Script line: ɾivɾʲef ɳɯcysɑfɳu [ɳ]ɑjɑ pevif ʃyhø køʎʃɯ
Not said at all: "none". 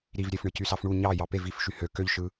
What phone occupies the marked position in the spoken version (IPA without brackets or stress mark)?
ɲ